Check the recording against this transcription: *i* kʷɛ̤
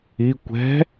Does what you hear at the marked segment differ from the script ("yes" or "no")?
no